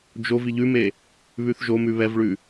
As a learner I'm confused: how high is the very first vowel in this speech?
mid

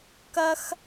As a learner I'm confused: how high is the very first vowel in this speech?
low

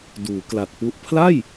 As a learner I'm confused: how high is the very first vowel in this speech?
high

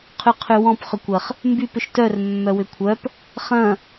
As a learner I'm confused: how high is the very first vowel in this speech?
high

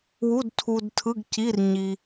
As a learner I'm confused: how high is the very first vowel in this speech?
high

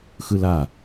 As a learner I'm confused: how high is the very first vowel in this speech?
high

